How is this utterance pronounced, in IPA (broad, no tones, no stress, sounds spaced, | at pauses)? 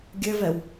ɡʲ ɘ v ɛ w